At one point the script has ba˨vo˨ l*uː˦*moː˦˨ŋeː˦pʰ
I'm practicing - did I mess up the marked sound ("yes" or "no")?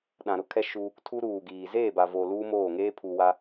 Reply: no